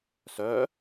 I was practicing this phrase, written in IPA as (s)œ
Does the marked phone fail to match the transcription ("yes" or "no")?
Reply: no